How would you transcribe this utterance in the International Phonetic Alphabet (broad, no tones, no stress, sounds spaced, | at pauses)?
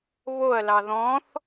β o ɐ̯ l ɑ ð ɔ̃ θ